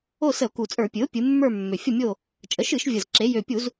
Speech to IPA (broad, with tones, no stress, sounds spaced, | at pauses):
o˦˨ s ə˧˩˧ o̯ k u˨˩ t͡sʼ ə˞˧˩˧ pʲ ɨ˩˥ o̯ pʲ ɨ˩˧ mː ə˞˦˨ mː ø˨˩ fʲ ə˦˨ mʲ o˦˨ | t͡ʃʼ ə˩˥ ʃ ɨ˧˩˧ ʃ vʲ ə˨˩ z ǁ e˩˧ j ø˨˩ pʲ u˧˩˧ z